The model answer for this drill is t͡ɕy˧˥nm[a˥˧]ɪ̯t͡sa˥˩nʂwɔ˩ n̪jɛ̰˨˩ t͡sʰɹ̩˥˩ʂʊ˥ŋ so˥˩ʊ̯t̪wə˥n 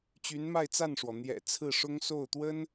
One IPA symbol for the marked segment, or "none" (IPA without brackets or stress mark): a˥˧